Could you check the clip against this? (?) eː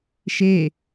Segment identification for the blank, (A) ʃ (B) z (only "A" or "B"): A